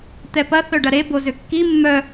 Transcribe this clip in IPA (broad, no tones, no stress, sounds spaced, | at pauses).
t̪ ɛ p ɐ θ œ ɖ ɐ ɾ e b o z ʏ kː i mː œ